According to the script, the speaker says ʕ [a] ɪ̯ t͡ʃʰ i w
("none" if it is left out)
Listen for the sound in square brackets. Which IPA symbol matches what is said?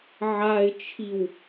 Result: a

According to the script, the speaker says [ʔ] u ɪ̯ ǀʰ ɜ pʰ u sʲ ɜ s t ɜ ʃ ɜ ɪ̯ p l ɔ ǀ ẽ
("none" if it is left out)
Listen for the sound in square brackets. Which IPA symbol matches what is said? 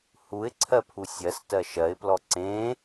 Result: h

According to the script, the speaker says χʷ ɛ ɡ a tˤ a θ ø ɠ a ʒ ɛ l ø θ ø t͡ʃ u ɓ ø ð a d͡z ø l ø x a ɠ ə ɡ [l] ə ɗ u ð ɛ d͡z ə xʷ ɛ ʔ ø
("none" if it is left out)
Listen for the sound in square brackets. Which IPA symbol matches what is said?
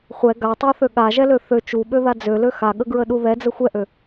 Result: ɹ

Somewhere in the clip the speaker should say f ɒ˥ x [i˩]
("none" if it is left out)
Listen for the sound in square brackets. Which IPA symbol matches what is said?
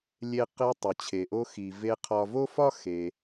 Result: e˩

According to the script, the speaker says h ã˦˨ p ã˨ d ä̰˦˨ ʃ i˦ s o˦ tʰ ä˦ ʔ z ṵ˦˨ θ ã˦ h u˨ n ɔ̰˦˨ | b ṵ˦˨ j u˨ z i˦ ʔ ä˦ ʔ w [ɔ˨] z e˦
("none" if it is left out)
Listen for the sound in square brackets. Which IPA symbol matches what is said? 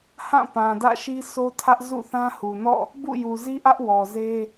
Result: ɔ˨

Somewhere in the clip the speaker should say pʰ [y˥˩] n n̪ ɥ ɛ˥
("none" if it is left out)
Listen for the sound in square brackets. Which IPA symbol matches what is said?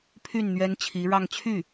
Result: y˥˩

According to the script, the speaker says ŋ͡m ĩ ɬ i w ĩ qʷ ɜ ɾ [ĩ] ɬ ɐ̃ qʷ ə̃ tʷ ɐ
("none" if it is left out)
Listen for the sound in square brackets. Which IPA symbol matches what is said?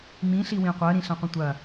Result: ĩ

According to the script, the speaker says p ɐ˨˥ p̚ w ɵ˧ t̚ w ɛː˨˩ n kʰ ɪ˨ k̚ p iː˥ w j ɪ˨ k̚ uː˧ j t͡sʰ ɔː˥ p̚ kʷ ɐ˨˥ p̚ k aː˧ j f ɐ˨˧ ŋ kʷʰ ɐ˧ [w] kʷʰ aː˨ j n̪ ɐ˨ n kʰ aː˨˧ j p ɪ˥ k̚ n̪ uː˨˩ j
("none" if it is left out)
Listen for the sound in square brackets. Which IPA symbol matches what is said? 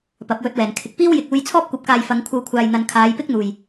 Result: w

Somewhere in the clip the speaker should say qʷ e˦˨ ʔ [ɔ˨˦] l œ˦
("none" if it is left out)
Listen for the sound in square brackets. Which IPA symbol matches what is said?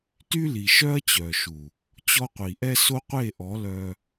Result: ɔ˨˦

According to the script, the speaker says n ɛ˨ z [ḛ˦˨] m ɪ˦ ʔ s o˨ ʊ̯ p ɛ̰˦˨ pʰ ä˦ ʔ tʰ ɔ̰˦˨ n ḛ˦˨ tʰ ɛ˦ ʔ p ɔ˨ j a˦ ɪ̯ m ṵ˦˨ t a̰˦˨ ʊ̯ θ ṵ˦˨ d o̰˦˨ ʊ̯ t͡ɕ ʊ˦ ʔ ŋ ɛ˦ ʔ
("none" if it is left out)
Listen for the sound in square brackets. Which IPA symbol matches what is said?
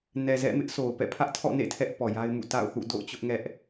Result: ɛ̰˦˨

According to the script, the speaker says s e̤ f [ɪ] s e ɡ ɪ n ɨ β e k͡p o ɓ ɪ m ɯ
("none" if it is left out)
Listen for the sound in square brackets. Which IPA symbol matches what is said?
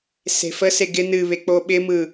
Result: ə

